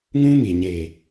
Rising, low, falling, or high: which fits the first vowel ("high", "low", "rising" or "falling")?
high